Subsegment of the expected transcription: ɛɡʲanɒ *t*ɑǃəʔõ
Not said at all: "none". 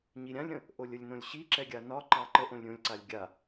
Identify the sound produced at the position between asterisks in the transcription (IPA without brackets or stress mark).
ǃ